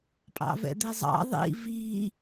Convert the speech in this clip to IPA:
pʼ ɑ̰ v ɛ̰ d̪ e zˤ ɑ̰ ðˤ ḭ v i

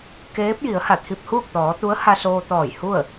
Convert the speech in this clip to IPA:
k eː˧˥ p̚ j i˩˧ ə̯ h a˧˩ t̪ʰ i˧ p̚ h uː˥˨ k̚ t̪ ɔː˩˧ t̪ u˧˥ ə̯ h a˧ s oː˧ t̪ ɔː˧˩ j h u˥˨ ə̯

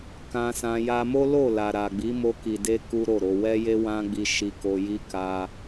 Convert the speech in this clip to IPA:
k ã˧ s ã˧ j a˧ m o˦ l o˦˨ l a˨ ɾ a˨ ɡ͡b i˨˦ m o˧ k i˨ d e˧ k u˦ ɾ o˦˨ ɾ o˧ w ɛ˦ j e˦ w ã˦ ɡ͡b i˧ ʃ i˧ k o˧ j i˦ k a˧

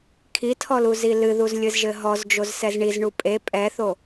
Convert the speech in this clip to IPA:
kʰ i tʰ ɔ l u z i l ɨ ð u z lʲ ɨ z ʒ ɘ ɦ ɔ z d͡ʒ o z s ɛ z ɳ i z ɳ u pʼ e pʼ ɛ θ o

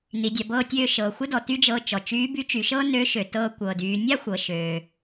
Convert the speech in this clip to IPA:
n i˩˧ dʲ a˩˧ b ɤː˧ tʲ øː˧ ʃ ɤː˩ xʷ ə˥ d ɔ˩ t y˥ d͡ʒ ɤː˧ t͡ʃ ɔ˩ t͡ʃ yː˧˥ b y˧˥ t͡ʃ y˩˧ ʃ ɤː˥ n ø˧˥ ʃ ø˩ t ɤː˧ kʷ ɤː˩ d yː˩˧ nʲ a˥ xʷ ɤ˩ ʃ øː˩

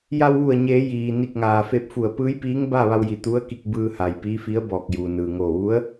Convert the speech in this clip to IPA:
j a˧ w ʋ u˧˩ ə̯ ɲ eː˩˧ j iː˩ n i˧˩ k̚ ŋ aː˩ f e˧ p̚ f u˧˩ ə̯ p ɯː˧˥ j p iː˧˥ ŋ b a˥˨ ʋ a˧ w j i˧˩ t̪ u˧˥ ə̯ k i˧ k̚ b ɯː˧ h a˩ j p iː˧˥ f i˧˥ ə̯ b ɔː˧˩ k̚ j uː˩ n ɯː˩ ŋ oː˧˩ ʋ u˧˥ ə̯

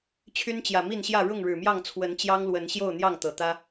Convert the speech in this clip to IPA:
t͡ɕʰ y˦ n t͡ɕ j ä˨˩ m i˥˨ n ɕ j ä˥˨ ɻ ʊ˥˨ ŋ ɻ ɻ̩˨˩ m j ɑ˥˨ ŋ t͡sʰ w ə˨˦ n t͡ɕ j ɑ˦ ŋ l w ə˨˦ n ɕ j o˥˨ ʊ̯ n̪ j ɑ˥˨ ŋ t̪ ɤ˨˩ t̪ ä˦

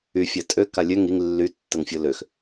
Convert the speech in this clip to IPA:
y fʲ a tʼ ø k a lʲ ø ŋ i ŋ lː y tː ə ŋ fʲ o l ø x

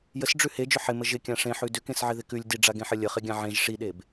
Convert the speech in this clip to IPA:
j ə s ɖ͡ʐ ʉ h e d͡ʒ ʏ ħ ɪ m ə ʒ ɪ kʲ ã ʂ ẽ ħ ʉ d ʏ k ẽ s ʕ ɪ ð ɪ k ʉ lʲ d i ɖ͡ʐ a ɡ ẽ ħ ə lʲ ə χ ɪ ɡʲ ã ʕ ẽ ʒ ʂ i ɗ e b

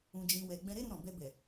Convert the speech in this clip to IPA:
ũ˧ d͡ʒ ĩ˧ w ɛ˧ ɡ͡b ɛ̃˧ ɾ e˦ ɾ ũ˧ ɾ ɔ̃˨ b ɛ˧ b ɛ˨

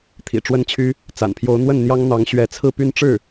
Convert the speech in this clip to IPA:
t̪ʰ ḭ˨˩ ʈ͡ʂ w ə˥ n t͡ɕʰ y˥ | t͡s a̰˨˩ n pʰ j o˧˥ ʊ̯ n̪ w ə˥˩ n n̪ j ɑ˥ ŋ n̪ ɑ˧˥ ŋ ɕ ɥ ɛ˧˥ t͡sʰ ɹ̩˥˧ p y˥˧ n ʈ͡ʂ ɻ̩˥˩

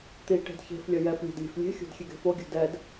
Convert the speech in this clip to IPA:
t̪ i ʈ e̤ d ç e̤ f lʲ ʌ j ɛ f lʲ e̤ d lʲ e̤ f lʲ e̤ xʲ o̤ d xʲ e ɡ e̤ f o ɡʲ ṳ d ɛ d

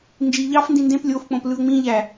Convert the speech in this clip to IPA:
n d͡ʒ i ʎ ɑ f n d ĩ n d ẽ p lʲ o f k͡p õ p l ɯ ə̯ ŋ͡m ĩ ʎ æ

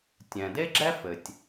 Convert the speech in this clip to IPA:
tʲ ɛ̃˩ d e˥ ɡ͡ǁ ɛ˥ f ɘ˩ tʲ

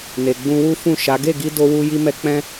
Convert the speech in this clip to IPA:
n e˨ ɡ͡b ũ˧ w u˦ f ũ˦˨ ʃ a˨˦ ɡ e˦˨ ɡ i˧ d o˧ w u˧ j i˧ m ɛ˧ k͡p ɛ̃˦

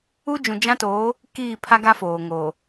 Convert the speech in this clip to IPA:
u˦ d͡ʒ ũ˨ d͡ʒ ã˦ t oː˨˦ | k iː˦˨ pʰ a˦ ɡ a˦ f oː˨ ŋ oː˨

